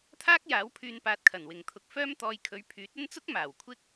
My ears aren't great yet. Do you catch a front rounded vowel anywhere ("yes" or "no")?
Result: yes